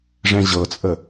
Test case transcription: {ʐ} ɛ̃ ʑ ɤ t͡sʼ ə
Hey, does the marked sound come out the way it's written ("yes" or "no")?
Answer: yes